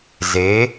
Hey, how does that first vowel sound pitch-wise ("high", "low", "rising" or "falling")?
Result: rising